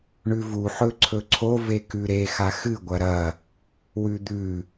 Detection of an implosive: absent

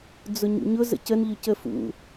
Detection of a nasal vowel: absent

